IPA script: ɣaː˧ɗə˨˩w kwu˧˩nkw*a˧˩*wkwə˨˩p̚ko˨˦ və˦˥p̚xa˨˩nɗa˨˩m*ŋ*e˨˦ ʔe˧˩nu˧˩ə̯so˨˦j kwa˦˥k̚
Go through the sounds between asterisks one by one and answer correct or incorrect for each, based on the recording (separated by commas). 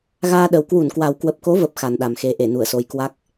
incorrect, incorrect